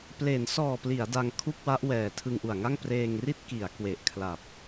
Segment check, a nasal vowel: absent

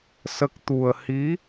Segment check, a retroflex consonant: absent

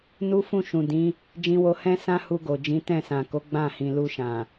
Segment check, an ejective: absent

